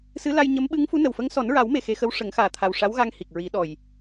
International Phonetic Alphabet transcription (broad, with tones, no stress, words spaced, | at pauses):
sɨ˧˥la˧j ɲə˧˥m ɓɨ˧˥ŋfu˧˥nə˨˩wfə˧˥ŋ sɔ˨˩˦nɹa˨˩˦wme˨˩ xe˧xə˧˥w ʂə˨˩˦ŋxaː˨˩t̪ʰa˨˩w ʂa˧˥wɣa˧ŋ hi˨˩k̚ ɹi˨˩˦ɗɔ˨˩j